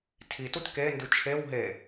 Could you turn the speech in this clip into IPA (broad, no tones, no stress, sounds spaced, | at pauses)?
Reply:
tʰ i t u t k e n d ʉ t͡ʃʰ e w ɦ e